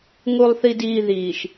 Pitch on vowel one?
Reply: low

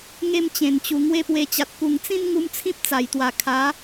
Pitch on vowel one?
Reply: high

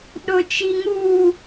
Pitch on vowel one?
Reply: low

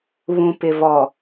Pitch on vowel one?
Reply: low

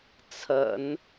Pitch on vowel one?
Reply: low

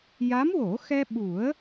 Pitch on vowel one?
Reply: rising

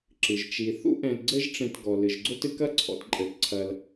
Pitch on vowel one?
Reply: low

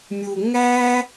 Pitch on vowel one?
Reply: low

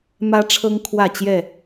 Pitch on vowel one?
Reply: high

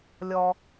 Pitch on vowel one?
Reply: low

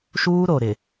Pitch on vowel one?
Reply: high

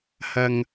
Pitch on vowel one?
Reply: low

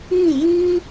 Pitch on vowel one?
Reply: falling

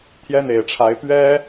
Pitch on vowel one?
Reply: high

